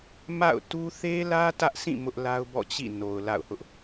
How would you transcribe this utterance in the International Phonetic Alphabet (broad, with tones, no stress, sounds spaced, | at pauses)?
m a̰˦˨ ʊ̯ t u˦ θ e˦ l ä˦ t ä˦ ʔ s ĩ˦˨ m ʊ˦ ʔ l a˦ ʊ̯ b ɔ̰˦˨ t͡ɕ ḭ˦˨ n o˨ ʊ̯ l a̰˦˨ ʊ̯ h ʊ˦ ʔ